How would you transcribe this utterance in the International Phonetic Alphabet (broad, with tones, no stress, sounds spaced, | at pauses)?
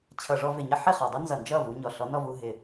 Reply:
t͡ɕʰ ʌ˨ ʐ ɔ˧ v ɪ˨ ɲ ʌ˦ ħ ɪ˦˨ χ ɔ˨ dˤ u˦ n z ʌ˨ n d͡ʒ ʌ˦˨ v u˧ ɲ ɔ˨ ɬ ɔ˨˦ n ɔ˧ v u˧ ɦ ɪ˨